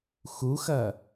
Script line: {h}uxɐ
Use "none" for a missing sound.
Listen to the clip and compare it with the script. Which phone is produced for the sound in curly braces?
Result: x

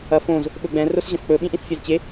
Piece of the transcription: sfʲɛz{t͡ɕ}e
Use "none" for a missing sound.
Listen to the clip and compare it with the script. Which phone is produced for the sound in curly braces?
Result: t͡ɕ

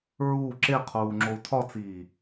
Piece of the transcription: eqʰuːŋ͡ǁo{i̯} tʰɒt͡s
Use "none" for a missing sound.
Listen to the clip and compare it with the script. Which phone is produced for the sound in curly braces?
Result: u̯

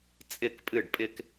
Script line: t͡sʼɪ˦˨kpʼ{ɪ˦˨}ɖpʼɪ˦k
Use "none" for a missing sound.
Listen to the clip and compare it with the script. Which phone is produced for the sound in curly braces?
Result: ɨ˦˨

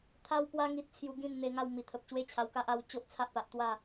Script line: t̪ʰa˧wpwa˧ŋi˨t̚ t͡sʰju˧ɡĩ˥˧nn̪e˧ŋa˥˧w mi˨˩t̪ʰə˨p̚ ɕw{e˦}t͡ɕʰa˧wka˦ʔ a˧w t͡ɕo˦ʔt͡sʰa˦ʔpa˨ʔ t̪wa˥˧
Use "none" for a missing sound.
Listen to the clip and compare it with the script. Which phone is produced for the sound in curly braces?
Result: e˦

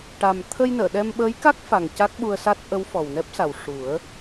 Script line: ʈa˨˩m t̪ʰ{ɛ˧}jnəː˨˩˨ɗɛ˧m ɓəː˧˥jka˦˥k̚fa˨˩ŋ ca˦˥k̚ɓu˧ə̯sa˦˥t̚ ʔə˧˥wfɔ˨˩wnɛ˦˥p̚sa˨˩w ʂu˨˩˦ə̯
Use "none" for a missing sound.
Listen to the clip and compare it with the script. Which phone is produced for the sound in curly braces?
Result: ə˧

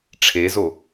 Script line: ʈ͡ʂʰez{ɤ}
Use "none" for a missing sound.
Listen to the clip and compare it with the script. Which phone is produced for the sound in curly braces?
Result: o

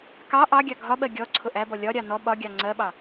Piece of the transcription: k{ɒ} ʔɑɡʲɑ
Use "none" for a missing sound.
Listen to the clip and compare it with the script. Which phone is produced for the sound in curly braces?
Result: ɑ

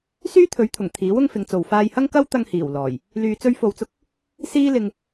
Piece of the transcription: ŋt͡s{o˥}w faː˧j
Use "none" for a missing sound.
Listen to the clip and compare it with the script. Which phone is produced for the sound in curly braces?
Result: o˨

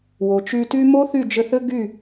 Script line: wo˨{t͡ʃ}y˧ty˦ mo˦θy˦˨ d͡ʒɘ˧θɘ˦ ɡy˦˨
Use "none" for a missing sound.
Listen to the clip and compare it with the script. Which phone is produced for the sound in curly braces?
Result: t͡ʃ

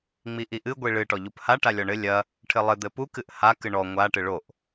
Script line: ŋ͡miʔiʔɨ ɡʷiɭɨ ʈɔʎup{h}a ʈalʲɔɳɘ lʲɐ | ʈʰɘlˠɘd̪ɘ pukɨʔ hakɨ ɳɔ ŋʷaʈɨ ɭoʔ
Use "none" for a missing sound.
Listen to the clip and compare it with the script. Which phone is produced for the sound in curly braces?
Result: h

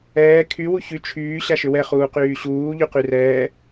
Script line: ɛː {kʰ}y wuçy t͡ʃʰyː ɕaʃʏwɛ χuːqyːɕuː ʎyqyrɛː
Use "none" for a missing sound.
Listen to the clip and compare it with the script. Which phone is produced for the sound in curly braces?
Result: kʰ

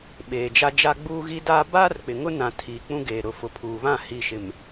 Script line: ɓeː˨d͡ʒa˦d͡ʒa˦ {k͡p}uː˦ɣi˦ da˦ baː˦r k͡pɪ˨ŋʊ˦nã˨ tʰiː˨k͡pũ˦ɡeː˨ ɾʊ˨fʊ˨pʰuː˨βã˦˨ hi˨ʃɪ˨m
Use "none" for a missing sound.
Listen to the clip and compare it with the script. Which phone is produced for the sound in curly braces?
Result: ɡ͡b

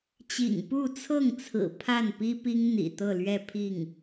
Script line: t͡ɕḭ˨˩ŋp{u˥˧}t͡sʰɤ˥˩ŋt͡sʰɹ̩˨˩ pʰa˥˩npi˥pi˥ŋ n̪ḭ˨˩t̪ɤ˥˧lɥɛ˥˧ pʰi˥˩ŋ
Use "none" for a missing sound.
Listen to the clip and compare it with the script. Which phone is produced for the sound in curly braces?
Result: u˥˧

